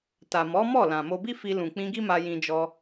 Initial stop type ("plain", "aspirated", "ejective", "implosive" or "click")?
plain